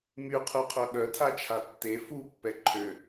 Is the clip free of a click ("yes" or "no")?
no